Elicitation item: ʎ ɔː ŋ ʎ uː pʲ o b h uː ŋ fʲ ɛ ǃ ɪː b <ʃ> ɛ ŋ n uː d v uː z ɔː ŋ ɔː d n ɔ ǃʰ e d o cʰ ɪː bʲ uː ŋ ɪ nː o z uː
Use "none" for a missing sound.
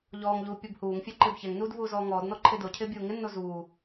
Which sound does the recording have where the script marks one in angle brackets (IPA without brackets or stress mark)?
ç